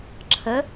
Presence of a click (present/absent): present